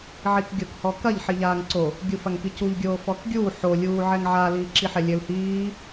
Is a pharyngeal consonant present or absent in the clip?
present